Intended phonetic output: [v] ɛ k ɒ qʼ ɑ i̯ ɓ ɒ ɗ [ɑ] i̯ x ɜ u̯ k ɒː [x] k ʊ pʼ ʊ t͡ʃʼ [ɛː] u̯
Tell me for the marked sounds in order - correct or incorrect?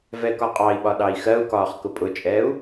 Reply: correct, correct, incorrect: χ, correct

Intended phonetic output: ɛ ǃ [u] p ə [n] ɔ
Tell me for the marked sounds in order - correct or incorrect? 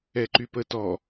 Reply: incorrect: y, incorrect: t

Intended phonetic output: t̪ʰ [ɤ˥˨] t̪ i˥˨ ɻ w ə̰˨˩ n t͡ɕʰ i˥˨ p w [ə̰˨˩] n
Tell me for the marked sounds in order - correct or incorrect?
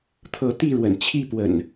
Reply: incorrect: ɤ˨˦, correct

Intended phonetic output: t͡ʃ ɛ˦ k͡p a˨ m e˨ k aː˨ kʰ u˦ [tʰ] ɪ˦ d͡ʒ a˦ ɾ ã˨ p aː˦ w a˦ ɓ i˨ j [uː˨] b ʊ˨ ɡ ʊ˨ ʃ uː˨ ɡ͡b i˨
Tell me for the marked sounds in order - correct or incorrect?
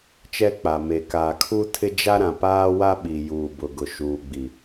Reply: correct, correct

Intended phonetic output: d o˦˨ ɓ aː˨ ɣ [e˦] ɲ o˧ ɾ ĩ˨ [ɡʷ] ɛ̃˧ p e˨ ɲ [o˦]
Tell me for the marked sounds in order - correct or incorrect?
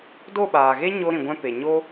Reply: correct, correct, correct

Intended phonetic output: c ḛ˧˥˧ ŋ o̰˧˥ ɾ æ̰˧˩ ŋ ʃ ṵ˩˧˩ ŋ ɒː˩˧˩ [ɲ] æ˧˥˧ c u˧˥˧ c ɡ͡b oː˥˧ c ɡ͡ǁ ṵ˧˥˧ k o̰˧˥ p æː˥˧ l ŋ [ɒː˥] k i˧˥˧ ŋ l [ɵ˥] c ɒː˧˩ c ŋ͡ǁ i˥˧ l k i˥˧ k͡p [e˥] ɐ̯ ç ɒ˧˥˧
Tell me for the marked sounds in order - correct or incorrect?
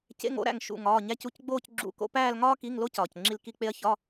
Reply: correct, correct, incorrect: o˥, correct

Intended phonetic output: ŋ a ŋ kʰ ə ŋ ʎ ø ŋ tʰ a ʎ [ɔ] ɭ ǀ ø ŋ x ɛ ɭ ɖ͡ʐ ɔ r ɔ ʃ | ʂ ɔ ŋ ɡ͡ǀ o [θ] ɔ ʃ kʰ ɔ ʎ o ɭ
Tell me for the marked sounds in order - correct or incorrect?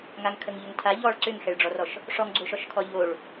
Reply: correct, incorrect: ʃ

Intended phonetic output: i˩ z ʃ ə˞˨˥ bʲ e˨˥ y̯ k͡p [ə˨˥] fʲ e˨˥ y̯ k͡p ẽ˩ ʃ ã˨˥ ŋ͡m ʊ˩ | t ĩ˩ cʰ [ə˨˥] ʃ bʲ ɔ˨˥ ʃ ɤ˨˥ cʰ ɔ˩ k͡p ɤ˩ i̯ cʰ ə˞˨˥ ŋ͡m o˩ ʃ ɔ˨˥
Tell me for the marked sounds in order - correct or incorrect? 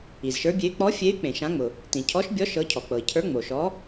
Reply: incorrect: ɔ˨˥, incorrect: ɔ˨˥

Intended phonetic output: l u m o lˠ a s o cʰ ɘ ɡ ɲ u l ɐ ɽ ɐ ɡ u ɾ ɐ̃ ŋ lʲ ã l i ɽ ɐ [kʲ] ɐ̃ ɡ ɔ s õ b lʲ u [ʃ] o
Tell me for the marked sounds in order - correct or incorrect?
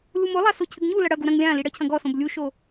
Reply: incorrect: cʰ, correct

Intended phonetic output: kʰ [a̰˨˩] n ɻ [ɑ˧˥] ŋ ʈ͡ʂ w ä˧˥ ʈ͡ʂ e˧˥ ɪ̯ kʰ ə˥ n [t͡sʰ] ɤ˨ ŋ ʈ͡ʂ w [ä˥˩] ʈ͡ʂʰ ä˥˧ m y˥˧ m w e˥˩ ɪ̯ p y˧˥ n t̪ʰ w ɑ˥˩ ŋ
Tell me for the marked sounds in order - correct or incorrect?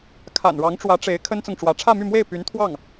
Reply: correct, correct, incorrect: t͡s, incorrect: ä˧˥

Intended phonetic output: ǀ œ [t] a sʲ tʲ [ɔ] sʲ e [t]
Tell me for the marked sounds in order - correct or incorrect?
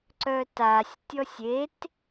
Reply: correct, correct, correct

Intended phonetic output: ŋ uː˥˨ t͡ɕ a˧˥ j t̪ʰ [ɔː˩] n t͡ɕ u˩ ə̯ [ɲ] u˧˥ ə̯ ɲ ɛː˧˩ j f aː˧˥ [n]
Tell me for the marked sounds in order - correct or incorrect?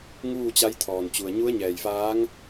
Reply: correct, correct, incorrect: ŋ

